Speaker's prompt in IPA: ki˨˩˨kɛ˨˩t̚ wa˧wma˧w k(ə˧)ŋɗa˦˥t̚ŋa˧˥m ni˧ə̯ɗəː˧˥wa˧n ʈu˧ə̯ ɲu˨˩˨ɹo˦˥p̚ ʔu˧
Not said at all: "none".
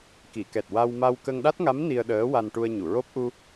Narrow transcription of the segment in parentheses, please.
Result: ə˧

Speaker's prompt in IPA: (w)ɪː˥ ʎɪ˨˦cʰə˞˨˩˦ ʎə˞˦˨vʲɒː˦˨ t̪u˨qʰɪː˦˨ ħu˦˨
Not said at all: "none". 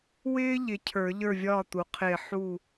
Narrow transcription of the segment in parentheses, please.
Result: w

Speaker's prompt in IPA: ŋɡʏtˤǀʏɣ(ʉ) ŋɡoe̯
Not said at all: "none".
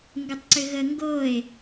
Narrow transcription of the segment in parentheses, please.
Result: ə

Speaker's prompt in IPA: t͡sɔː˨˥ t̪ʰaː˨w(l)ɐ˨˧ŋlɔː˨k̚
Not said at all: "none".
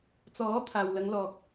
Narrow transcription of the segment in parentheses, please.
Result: l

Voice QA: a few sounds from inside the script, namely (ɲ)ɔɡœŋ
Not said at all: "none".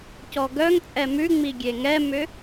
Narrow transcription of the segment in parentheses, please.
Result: c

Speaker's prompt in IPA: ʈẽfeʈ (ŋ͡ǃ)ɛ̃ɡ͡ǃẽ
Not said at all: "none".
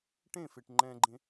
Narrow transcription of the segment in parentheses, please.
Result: ŋ͡ǃ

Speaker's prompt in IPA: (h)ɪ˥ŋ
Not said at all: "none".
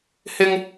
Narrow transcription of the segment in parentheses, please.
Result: h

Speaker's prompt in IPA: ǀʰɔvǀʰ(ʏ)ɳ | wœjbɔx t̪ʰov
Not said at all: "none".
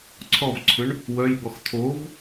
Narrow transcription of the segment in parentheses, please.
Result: ʏ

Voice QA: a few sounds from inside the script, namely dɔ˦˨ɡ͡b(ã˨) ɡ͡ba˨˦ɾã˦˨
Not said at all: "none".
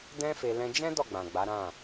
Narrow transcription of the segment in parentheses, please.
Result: ã˨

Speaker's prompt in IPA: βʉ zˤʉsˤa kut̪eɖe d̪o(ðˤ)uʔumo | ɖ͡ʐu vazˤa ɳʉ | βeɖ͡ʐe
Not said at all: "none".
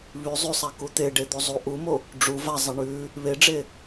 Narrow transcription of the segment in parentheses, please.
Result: zˤ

